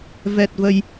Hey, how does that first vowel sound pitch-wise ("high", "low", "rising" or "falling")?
low